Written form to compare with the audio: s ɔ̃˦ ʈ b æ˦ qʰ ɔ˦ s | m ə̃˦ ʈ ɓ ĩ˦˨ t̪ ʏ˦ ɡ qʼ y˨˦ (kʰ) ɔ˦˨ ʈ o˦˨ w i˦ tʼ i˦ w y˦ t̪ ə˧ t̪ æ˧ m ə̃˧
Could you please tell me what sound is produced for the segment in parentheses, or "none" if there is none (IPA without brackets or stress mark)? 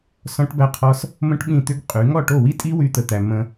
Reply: ŋ